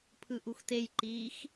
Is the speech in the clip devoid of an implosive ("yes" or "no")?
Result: yes